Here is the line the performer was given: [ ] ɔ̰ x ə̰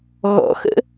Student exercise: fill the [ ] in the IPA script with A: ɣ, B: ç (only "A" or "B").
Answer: A